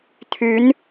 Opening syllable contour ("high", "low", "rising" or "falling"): rising